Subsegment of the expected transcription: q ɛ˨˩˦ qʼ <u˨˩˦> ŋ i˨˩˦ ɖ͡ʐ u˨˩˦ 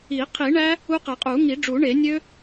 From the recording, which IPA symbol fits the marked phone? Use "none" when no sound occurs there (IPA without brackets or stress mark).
u˨˩˦